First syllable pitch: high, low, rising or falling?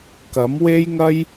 rising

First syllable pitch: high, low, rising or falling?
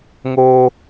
high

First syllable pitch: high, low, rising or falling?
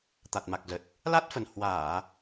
low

